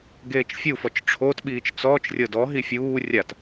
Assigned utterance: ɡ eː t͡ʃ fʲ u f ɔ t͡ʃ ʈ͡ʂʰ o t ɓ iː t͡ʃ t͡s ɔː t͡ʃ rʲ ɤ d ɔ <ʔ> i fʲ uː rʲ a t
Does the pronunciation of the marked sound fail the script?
yes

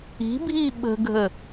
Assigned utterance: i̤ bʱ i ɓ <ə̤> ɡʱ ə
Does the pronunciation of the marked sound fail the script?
no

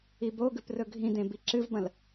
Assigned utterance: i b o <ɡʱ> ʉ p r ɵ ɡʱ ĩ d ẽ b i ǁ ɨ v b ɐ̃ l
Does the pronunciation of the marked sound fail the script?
yes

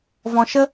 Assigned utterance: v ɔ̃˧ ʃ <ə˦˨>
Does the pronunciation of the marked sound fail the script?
yes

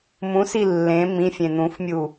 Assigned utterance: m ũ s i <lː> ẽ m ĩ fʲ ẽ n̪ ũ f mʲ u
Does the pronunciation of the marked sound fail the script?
no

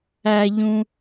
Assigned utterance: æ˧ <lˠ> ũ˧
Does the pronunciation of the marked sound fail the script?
yes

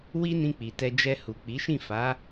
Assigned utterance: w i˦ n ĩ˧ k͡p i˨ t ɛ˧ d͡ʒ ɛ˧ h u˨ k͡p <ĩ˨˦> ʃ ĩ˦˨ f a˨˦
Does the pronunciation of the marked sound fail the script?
yes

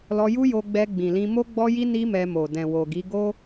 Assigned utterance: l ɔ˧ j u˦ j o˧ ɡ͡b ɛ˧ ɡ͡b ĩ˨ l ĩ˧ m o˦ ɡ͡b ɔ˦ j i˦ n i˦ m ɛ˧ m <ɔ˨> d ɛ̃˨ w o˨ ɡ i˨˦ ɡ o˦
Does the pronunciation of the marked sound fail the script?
yes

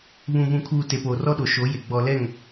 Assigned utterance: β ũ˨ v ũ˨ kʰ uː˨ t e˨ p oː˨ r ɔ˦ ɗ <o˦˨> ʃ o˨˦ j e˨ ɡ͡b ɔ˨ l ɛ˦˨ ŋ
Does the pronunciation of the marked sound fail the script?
yes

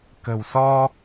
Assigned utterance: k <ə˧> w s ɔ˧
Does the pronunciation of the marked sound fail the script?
yes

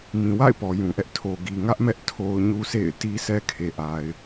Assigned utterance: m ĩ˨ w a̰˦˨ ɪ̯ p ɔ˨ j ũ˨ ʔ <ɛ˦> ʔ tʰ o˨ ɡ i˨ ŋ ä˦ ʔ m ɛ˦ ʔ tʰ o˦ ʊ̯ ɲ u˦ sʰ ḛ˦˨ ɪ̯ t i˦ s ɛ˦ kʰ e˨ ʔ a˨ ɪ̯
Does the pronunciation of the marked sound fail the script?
no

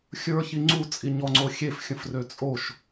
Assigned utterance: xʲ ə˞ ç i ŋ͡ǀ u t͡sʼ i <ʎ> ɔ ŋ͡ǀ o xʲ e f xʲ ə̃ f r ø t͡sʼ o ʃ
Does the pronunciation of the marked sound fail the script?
yes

